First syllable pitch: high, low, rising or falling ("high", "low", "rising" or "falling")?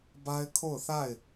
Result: high